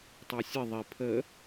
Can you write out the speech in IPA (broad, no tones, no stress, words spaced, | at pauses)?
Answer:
tˤə˞sʲə ðˤi pʰə